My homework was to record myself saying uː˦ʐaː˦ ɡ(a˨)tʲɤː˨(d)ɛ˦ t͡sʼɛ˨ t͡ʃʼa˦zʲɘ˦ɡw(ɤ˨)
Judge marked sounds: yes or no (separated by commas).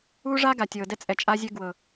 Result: yes, yes, yes